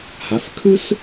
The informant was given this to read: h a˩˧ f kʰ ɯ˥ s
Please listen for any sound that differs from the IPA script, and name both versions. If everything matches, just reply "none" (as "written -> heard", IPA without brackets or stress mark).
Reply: none